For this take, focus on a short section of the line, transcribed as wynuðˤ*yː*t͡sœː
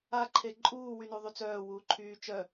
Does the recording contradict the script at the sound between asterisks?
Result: yes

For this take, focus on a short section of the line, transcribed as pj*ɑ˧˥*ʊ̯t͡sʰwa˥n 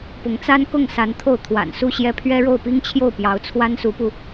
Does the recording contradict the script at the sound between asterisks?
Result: no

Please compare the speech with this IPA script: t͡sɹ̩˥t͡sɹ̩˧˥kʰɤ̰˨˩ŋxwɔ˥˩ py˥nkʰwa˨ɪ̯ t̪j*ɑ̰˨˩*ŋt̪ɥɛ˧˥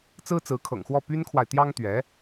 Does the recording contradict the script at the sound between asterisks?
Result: yes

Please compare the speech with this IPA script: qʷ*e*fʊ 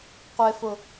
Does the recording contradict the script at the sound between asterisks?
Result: no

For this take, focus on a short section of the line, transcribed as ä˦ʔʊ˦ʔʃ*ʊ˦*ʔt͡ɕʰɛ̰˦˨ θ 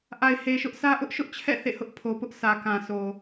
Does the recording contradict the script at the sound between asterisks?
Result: no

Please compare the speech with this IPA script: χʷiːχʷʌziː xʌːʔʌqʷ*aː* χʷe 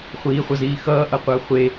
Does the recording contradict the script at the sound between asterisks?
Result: yes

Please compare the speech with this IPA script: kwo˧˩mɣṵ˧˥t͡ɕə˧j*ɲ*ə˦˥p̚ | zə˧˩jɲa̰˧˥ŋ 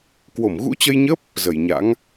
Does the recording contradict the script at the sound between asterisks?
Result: no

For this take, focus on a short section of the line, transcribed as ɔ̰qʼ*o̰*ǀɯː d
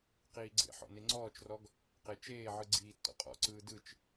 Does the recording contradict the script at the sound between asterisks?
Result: yes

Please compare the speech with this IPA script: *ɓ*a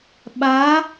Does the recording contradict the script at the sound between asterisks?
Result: no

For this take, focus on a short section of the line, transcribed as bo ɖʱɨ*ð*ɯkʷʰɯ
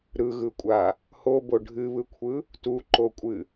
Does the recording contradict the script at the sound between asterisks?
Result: yes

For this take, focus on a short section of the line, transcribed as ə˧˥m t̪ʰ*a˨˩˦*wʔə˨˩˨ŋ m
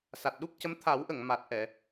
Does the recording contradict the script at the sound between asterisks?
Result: no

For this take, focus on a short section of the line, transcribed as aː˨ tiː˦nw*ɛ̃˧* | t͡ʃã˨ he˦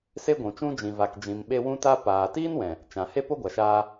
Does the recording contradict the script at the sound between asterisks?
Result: yes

